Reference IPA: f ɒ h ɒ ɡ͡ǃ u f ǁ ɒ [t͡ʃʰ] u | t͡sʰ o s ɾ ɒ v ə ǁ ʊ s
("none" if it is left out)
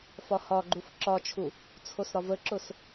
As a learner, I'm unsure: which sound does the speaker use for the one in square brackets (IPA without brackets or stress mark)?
t͡ʃʰ